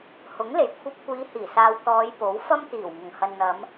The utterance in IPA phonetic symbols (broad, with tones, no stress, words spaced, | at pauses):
hʊ˨˥ŋle˨˥jkʷʰɐ˧p̚ kʷiː˨˧hiː˨˩saː˨wt̪ɔː˨˧j po˨˥wfɐ˥m t̪iː˨˩wŋʊ˨˩ŋhɐ˨n n̪ɐ˨˧m